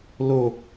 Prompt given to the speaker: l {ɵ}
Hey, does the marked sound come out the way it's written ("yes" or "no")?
no